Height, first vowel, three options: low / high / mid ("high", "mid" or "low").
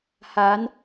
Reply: low